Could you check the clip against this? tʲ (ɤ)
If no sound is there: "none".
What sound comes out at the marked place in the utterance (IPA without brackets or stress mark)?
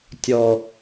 ɔ